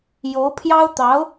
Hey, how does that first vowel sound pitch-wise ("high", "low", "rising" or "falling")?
rising